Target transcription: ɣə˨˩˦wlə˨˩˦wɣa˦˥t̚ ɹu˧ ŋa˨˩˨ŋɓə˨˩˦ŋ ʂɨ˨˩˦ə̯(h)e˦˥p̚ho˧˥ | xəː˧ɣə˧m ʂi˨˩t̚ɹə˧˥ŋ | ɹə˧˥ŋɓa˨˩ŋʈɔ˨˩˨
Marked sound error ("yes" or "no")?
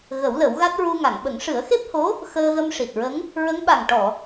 yes